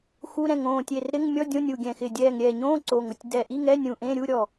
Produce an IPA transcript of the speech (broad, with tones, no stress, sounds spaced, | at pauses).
x u˧˥˧ ɾ ɛ̃˧˩ ŋ õː˧˩ tʲ e˧˩ r ɾ ɪ˧˥˧ ŋ mʲ ɔ˧˥˧ dʲ õ˧˥˧ nʲ u˧˩ ɡʲ ɛ̃˧˩ x ɪ˧˩ dʲ ɛː˧˩ ŋ ɾʲ ɛː˧˩ ɲ õː˧˥˧ ǀ o˧˩ ŋ ʊ˧˩ tʲ d ɛ˧˩ ʔ i˧˥˧ ŋ ɛ˧˥˧ nʲ ũ˧˩ ʔ ẽ˧˥˧ ɾʲ u˧˥˧ ɾʲ ɔ˧˩